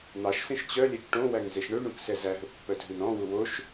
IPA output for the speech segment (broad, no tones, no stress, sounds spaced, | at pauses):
n̪ ɑ ʃ s ẽ ʃ t͡ɕ œ lʲ ɛ k ʈ õ w æ ŋ z e ʃ ɳ ø ɳ ũ k s ɛ z æ ɦ ɵ pː œ dʱ ʉ n ɔ̃ w u w o ʃ